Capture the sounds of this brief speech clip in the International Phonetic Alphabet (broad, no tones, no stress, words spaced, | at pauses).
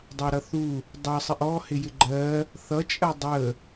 dˤɑɾʌθu | dˤɑsˤɪʔ ɔhɪ jɪɡ͡ǃɜ | θʌt͡ʃʼɜ dˤə